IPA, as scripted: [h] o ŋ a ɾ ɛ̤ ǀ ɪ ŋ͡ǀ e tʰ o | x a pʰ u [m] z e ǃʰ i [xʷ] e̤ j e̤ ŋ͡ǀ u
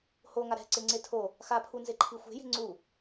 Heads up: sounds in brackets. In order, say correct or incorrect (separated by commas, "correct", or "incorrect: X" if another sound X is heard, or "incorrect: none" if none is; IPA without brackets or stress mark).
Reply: correct, incorrect: n, correct